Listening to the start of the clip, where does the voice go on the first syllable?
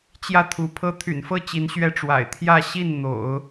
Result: falling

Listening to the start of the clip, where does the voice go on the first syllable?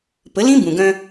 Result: rising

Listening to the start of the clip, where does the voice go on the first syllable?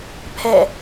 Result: falling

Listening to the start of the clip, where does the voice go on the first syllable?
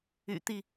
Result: low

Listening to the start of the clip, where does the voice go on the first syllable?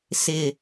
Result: low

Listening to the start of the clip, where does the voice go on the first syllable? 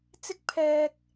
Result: high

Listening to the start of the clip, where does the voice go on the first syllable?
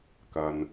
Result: low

